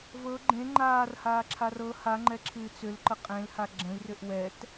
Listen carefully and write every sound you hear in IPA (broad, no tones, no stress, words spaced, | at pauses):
vɤ ɡ͡ǃẽ ŋ͡ǃaːrhaːǁʰar ɤ haŋ͡ǃɛǁʰɨː t͡sʏlǃə qʼẽlha ɡ͡ǁə̃i̯rʏʔ wɛt